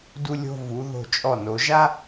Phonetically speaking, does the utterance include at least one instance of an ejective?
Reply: yes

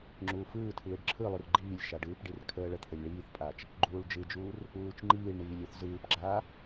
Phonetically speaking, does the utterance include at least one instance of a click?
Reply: yes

